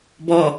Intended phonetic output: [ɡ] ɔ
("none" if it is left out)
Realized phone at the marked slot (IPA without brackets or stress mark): b